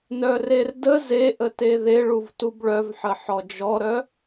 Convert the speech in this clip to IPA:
nœrerdə zeʔə teðeɭuv tubɭœvħə ħɔd͡ʒɔɾœ

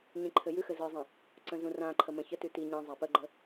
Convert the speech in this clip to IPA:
ɲĩǃʰɘjʉxɘ zɯzˤə̃ | ǀə̃zũrãǃʰə mə̃çətʉ ti ɲɛ̃ zˤapəɡ͡ǃə

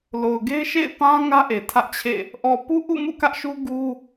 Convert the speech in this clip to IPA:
lo˨ʊ̯ɡe˦ɪ̯ ʃḛ˦˨ɪ̯pã˦ ŋä˦ʔe˨ tʰä˦ʔt͡ɕʰḛ˦˨ | ʔɔ˨ pu˦ʔṵ˦˨ mṵ˦˨kä˦ʔʃu˦ ɡu˦

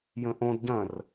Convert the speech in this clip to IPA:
jə̃ʔõd ɟɐ̃r

